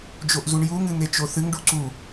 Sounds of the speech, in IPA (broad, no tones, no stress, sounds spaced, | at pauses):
d͡ʒ o ʔ z u ɳ j u ŋ ɨ n̪ e t͡ʃ o θ ɨ ŋ ɖ u ǀ u